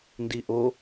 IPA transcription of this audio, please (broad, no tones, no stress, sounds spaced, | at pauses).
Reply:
n d i ʔ o